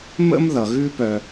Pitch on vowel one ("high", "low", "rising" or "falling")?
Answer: high